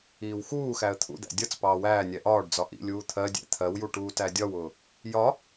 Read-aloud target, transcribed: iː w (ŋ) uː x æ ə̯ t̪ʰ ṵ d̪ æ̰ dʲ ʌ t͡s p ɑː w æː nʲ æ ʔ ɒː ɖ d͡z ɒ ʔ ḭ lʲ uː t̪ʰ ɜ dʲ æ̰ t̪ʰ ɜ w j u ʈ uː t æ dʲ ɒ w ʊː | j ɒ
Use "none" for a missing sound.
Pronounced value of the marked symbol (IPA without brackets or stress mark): x